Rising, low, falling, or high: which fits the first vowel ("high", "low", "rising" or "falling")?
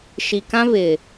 low